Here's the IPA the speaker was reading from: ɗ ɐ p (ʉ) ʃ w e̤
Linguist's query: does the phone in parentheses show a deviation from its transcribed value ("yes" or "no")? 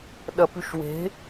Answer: no